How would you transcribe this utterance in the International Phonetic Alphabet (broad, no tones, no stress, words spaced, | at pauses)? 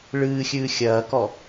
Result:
ɭɨːxʲɨː xʲɐːkɔ